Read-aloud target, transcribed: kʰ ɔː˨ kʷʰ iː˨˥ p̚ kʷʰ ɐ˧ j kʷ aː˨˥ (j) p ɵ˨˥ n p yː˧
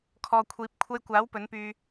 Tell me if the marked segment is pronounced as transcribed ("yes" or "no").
no